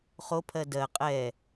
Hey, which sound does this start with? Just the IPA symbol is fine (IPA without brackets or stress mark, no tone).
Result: χ